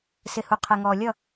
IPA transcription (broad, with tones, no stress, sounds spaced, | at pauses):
s ɪ˨ h u˨ qʰ ɛ˨ ŋ ɔː˨ lʲ ʌ˥˨